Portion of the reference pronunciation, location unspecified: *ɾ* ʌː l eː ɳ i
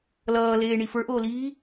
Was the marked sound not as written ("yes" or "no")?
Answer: yes